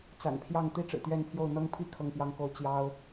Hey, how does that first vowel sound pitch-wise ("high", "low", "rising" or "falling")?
low